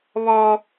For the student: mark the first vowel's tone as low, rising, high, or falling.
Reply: high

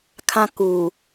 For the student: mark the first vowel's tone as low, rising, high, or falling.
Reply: high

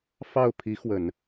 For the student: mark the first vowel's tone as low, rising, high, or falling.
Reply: falling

